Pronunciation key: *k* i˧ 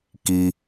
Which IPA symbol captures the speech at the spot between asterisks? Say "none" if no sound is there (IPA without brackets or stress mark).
k